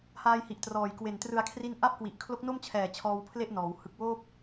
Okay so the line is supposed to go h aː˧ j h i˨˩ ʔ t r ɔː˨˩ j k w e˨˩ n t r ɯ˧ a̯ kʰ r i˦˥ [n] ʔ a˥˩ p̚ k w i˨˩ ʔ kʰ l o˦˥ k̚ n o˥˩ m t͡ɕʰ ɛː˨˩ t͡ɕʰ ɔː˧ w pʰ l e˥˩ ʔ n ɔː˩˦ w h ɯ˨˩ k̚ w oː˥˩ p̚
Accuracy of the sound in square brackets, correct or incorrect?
correct